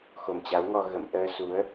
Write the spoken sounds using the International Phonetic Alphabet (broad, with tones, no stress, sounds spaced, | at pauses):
x o˨˩ m t͡ɕ a˨˦ w ŋ ɔ˧ ɣ ə̰˧˨ m ʔ əː˧ s u˨˦ ə̯